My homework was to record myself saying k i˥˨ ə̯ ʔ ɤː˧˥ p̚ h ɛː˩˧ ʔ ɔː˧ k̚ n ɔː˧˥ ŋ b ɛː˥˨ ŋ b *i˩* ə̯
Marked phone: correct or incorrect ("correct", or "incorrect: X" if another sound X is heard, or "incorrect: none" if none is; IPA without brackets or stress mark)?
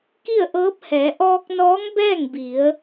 incorrect: i˩˧